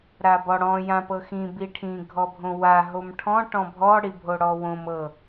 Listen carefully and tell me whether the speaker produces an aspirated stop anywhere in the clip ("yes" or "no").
yes